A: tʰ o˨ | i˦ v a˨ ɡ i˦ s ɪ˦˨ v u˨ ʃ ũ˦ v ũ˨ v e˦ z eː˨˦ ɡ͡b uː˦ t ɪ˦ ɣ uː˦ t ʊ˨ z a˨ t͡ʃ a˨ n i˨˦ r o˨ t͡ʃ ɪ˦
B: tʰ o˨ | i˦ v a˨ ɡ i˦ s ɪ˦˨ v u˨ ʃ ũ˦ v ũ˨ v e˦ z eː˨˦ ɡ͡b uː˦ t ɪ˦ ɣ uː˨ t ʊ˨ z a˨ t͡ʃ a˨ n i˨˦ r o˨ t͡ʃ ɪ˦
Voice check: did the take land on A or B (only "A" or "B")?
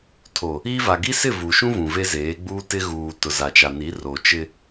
B